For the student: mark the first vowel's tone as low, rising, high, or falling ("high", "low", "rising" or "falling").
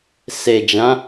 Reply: low